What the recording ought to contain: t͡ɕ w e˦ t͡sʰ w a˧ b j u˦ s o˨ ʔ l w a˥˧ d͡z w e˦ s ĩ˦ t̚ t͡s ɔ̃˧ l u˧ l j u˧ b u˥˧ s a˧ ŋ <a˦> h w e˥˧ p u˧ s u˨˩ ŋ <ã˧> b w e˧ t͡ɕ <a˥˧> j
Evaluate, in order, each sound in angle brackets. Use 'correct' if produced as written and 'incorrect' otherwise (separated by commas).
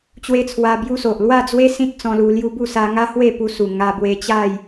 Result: correct, incorrect, correct